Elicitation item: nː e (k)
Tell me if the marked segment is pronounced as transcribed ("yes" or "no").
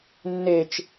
no